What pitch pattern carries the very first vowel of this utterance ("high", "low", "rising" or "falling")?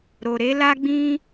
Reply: low